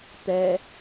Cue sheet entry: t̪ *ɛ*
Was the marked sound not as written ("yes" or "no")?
no